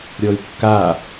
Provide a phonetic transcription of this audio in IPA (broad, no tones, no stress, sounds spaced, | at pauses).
ɾʲ ɔ y̯ kː a